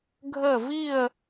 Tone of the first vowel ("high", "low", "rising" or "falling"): falling